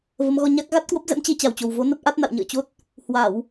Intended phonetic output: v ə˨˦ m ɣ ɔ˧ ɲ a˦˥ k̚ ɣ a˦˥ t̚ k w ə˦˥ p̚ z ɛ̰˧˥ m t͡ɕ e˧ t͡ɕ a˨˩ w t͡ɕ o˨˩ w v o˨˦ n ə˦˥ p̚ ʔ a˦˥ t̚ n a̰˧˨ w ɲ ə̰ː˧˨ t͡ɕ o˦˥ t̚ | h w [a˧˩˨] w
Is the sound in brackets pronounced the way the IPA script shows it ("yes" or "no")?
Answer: yes